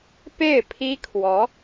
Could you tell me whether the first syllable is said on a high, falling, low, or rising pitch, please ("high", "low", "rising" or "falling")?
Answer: falling